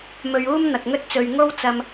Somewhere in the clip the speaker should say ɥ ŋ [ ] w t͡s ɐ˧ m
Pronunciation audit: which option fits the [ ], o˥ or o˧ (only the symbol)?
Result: o˥